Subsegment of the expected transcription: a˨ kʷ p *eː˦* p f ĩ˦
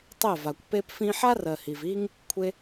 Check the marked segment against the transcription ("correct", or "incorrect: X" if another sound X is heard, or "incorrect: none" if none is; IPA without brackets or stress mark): incorrect: e˦